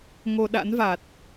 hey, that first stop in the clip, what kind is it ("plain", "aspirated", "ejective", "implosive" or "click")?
implosive